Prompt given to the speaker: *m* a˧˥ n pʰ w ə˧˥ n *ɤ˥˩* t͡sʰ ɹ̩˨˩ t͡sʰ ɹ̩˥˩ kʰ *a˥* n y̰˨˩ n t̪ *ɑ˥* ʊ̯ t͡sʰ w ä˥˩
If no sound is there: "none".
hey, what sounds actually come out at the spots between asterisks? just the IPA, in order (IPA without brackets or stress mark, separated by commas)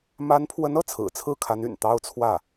m, ɤ˥˩, a˧˥, ɑ˥